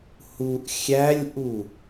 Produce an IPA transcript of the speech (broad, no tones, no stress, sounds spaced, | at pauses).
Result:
h u ʔ xʲ æ lʲ ʔ u